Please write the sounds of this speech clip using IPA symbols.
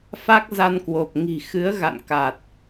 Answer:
fa˦˥k̚ za˧nkwo˨˩p̚ ŋi̤˨˩xɨ˨˦ə̯ ɣa̰˧˨nka˨˩t̚

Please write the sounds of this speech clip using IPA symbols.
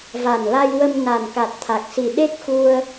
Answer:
va˨˩nla˧jwə˧m na˨˩nka˨˩t̚ t̪ʰa˨˩k̚si˨˩ ɗe˦˥k̚xu˧ə̯

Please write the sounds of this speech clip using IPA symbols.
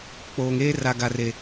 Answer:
k͡poː˨ŋ eː˦ra˨ɡa˨ re˨

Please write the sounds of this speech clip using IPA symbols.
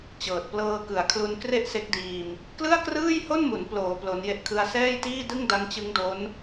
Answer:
t͡ɕɤː˨˩t̚plɤː˧kɯ˩˦a̯kʰlu˧n kre˥˩ʔse˦˥k̚diː˧m | klɯ˥˩a̯krɯː˥˩jho˥˩nmu˩˦n ploː˩˦ plo˦˥nje˥˩ʔkʰɯ˥˩a̯ sɛː˥˩jtiː˥˩dɯ˥˩ŋ da˦˥ŋt͡ɕɯ˦˥ŋdo˦˥n

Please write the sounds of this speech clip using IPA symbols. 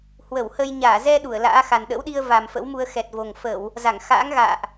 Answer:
hwə˧˩whə˧jɲaː˧˩ zɛ˧ ɗu˧˩ə̯la̰ː˧˥xa˨˩n ɗə̰˧˥wɗi˧ə̯ va˨˩mfə̰˧˥wmu˧ə̯ xɛ˨˩t̚vo˨˩ŋfə˧˩˨w | za˧˩ŋ xa̰ː˧˥ŋ ɣa̰ː˧˨ʔ

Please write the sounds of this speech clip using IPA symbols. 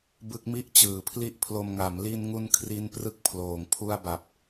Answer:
bɯ˦˥k̚mi˥˩ʔ t͡ɕɯː˨˩pʰli˥˩ʔpʰlo˧m ŋa˩˦mli˧nŋu˧n kʰri˥˩n prɯ˥˩k̚pʰloː˨˩ŋ pʰu˥˩a̯ba˨˩p̚

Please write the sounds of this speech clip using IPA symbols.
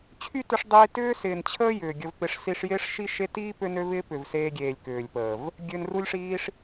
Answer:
t͡ɕʰy˦tʏ˧ʂdˤiː˧ tʏː˦sɪː˨nt͡ɕʰəː˦ jʏː˨ɡʲə˧vpɪ˧ʂ si˧ʂjɪː˦ʂʃi˦ʃe˦ tiː˦ pø˦nø˦vɪː˦ pʏ˨vseː˧ɡʲeː˨lʲ kʏː˨lʲpəː˨v | ɡʲø˧nru˦lʲʂiː˦ʂ

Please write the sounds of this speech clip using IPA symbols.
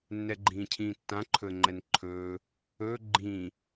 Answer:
nːɛɡ͡ǃĩːcʰĩːtːã ǃʰɵə̯ŋ͡ǃɛnǃʰɵː | ɵː ɡ͡ǃĩː

